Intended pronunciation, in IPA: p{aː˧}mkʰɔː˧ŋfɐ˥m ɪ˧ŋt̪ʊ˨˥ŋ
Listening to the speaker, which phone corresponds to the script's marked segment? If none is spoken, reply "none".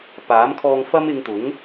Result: aː˨˥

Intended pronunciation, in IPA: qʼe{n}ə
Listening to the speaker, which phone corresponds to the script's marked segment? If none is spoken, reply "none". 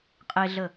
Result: ɮ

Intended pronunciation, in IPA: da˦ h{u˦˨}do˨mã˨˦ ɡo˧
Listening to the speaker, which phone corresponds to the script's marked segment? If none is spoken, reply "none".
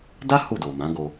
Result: u˦˨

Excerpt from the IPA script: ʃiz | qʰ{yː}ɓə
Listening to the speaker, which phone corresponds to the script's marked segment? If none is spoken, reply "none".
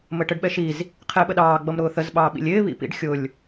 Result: ɪː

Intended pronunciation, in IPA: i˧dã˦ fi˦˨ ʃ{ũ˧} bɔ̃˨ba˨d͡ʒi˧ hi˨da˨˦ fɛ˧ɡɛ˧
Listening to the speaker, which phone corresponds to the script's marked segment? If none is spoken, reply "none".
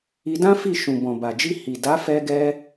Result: ũ˨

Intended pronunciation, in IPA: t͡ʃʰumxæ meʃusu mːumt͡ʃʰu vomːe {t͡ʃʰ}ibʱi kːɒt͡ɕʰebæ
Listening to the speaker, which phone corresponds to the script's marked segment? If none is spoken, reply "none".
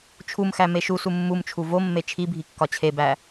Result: t͡ʃʰ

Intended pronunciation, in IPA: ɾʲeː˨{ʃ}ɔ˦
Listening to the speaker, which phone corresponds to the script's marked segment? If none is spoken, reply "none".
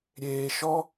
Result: ʃ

